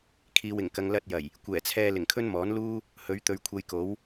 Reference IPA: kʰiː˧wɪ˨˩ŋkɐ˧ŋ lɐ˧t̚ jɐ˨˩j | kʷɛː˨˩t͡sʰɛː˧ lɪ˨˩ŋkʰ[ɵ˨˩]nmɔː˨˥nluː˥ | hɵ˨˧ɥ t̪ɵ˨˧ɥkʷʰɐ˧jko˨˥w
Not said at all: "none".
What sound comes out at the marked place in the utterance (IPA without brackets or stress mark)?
ɵ˥